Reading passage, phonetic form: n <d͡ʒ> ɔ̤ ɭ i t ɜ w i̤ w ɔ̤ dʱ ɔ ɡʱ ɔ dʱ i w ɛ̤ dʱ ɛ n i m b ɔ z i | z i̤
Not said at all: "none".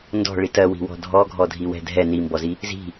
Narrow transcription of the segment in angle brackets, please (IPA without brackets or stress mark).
d